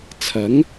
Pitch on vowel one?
rising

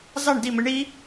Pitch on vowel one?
falling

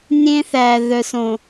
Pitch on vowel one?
high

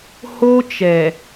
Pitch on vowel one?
high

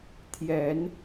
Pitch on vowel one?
low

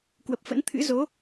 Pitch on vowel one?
low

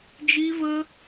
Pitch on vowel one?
high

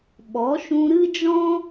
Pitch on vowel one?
rising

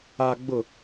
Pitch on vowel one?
low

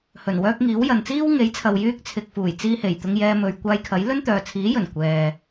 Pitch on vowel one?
low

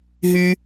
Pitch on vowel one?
low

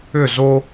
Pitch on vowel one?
falling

